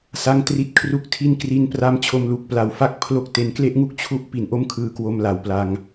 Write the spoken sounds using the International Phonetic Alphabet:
s a˧ ŋ t r i˦˥ t̚ kʰ r u˦˥ k̚ tʰ i˥˩ n k r i˧ n p r a˦˥ m t͡ɕʰ o˧ m l u˨˩ k̚ p l a˨˩ w f a˦˥ k̚ pʰ l o˥˩ k̚ t e˧ n k l e˦˥ ʔ ŋ u˦˥ k̚ t͡ɕʰ u˥˩ ʔ p i˨˩ n ʔ o˥˩ m kʰ ɯː˧ k w o˧ m l a˨˩ w p l a˧ ŋ

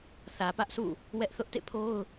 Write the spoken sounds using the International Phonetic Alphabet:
θ ä˨ p ä˦ ʔ sʰ ṵ˦˨ | w ɛ˦ ʔ θ ʊ˦ ʔ t ḛ˦˨ pʰ o˦ ʊ̯

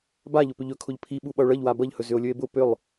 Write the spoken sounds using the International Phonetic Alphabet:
b a ʎ ʊ p ʏ ʎ ɵ kʰ ʊ ʎ pʰ i ɓ u ɓ ʌ o̯ ɭ ʌ ʎ w a b ʌ ʎ h ɵ z ʏ o̯ lʲ ɵ e̯ b ʊ p ʏ lˠ

